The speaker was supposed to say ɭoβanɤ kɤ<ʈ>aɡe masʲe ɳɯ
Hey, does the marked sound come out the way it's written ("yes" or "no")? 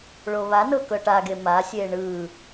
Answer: yes